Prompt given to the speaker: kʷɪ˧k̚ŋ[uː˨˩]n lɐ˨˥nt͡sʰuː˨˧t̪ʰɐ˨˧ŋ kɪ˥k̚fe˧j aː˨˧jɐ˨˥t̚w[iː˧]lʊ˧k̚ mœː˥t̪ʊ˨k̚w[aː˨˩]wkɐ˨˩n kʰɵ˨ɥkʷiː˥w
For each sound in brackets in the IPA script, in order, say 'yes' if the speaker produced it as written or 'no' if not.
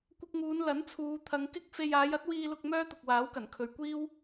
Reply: no, yes, no

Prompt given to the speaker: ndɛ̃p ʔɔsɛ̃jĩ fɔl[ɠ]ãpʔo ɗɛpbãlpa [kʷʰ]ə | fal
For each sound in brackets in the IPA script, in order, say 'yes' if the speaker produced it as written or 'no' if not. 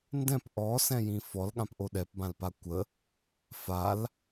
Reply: yes, no

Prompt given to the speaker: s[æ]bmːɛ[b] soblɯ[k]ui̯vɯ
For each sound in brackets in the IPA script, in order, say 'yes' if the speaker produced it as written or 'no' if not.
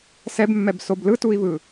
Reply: no, yes, no

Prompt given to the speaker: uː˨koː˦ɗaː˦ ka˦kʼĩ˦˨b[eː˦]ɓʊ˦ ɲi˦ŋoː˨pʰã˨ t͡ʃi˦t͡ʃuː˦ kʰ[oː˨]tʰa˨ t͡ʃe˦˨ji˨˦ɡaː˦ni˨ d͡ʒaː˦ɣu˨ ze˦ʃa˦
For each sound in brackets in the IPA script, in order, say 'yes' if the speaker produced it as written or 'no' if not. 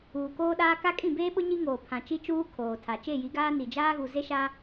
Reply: yes, yes

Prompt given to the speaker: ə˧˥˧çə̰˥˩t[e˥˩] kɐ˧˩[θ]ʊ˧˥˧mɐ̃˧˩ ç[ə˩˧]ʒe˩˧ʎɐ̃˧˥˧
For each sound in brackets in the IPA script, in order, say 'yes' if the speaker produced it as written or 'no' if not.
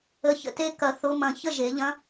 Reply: no, yes, no

